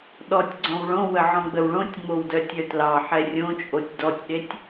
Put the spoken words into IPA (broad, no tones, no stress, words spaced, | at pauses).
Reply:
ɗɔtʲɡ͡ǀɔ̃w ɭõwə ʕɔ̃ɡ͡bəwɭõtʲŋ͡mow dœtʲœtlɑħɛ rʲõt͡ʃʼotʲ dɔtʲɗetʲ